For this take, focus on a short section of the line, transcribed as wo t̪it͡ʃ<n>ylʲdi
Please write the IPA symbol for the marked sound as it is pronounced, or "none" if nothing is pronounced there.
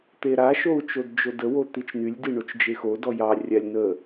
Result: n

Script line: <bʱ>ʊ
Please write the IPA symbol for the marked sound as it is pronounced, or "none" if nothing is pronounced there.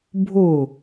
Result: bʱ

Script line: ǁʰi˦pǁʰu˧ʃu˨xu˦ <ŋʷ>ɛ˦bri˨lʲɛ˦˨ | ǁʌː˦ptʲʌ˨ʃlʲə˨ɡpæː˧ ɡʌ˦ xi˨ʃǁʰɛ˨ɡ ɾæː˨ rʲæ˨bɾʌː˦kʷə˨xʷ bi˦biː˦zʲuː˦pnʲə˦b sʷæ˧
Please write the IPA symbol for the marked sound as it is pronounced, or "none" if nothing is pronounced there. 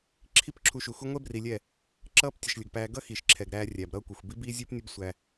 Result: ŋʷ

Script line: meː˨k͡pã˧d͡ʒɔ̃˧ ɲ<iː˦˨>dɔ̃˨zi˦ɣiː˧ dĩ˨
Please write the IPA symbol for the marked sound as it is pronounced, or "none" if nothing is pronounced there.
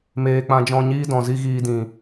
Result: iː˦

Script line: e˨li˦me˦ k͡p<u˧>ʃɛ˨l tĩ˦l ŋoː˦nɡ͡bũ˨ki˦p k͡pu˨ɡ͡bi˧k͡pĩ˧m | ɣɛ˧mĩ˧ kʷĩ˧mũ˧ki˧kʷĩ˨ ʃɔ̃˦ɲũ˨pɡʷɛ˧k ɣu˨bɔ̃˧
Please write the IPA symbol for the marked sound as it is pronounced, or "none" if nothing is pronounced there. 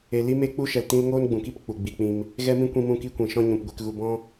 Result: u˦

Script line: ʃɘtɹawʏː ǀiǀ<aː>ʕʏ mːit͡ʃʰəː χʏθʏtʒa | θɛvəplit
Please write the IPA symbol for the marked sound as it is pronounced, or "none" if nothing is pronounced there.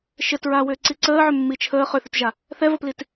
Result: əː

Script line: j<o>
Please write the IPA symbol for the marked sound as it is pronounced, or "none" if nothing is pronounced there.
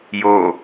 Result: o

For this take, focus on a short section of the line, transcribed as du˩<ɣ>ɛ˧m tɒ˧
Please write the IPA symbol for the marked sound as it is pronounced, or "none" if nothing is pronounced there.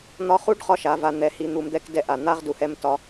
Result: h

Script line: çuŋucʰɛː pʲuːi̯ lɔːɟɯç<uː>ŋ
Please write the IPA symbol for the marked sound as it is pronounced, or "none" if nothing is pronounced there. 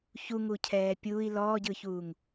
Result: uː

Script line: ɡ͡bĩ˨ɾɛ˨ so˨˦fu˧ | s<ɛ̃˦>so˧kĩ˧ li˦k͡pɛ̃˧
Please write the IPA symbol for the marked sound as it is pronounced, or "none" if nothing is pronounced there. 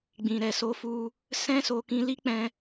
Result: ɛ̃˦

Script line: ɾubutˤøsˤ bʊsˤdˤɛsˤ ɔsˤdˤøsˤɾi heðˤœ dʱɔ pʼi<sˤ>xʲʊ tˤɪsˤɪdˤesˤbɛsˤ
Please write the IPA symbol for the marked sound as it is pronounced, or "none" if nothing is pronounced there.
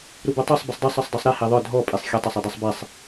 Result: sˤ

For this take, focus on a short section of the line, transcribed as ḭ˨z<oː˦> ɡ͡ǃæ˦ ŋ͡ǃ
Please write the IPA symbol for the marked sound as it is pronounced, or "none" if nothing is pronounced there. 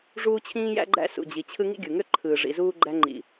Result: uː˦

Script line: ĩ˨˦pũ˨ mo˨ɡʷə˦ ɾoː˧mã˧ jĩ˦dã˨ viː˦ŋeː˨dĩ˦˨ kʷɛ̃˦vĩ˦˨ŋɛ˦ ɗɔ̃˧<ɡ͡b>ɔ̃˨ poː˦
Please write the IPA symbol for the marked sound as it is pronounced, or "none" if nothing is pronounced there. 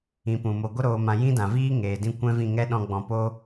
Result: ɡ͡b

